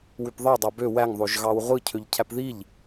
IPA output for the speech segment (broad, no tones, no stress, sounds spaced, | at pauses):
w y p ðˤ e dˤ ɑ b ø w æ ŋ ðˤ o ʒ ɣ ɑ w ʁʷ ɯ cʰ ø ʎ cʰ æ p ð i ʎ